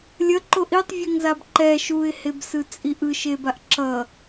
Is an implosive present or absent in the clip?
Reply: absent